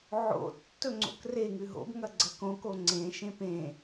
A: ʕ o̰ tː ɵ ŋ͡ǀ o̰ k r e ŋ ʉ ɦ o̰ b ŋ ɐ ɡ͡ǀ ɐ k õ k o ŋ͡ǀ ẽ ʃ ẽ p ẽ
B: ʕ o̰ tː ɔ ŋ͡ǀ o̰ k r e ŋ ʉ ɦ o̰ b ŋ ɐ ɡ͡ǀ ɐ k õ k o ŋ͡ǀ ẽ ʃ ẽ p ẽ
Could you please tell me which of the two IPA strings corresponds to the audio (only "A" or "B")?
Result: A